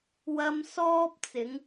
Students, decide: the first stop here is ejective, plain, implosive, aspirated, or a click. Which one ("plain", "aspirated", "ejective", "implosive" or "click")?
plain